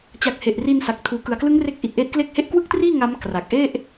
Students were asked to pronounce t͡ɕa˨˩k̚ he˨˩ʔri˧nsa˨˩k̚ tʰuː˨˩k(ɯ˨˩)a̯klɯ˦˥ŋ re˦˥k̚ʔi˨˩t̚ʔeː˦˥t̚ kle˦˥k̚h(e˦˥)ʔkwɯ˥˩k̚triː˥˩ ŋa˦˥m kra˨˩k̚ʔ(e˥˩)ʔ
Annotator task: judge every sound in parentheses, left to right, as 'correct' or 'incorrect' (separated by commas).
correct, correct, correct